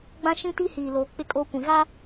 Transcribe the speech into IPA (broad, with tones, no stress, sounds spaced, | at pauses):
ɡ͡b ã˦ ʃ ĩ˦ t i˦ h iː˨ l oː˨ k͡p ɪ˦ kʼ o˦ kʷ ĩ˨ ɣ a˦